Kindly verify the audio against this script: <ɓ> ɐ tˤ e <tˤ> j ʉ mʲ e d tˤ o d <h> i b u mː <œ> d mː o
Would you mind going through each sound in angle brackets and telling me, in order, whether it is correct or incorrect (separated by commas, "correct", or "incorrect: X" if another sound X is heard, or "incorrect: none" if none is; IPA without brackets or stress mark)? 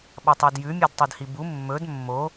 correct, incorrect: d, correct, incorrect: ɵ